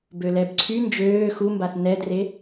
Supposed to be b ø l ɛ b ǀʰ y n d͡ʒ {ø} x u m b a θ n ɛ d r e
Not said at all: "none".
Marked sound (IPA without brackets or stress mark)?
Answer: øː